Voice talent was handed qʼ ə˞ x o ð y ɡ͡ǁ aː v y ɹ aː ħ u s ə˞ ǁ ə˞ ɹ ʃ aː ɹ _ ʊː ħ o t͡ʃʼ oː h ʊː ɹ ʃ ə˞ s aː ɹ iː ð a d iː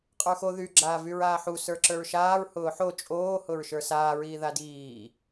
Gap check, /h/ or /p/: h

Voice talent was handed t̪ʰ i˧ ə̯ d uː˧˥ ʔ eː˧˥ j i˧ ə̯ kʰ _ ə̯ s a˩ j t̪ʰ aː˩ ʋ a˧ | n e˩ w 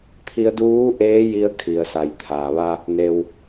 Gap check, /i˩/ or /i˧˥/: i˩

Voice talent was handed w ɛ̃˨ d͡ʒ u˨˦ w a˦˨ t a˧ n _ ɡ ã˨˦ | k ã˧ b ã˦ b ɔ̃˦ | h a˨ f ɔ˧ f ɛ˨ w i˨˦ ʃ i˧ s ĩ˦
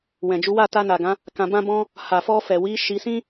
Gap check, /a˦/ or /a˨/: a˨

